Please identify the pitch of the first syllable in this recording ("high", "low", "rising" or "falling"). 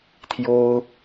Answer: high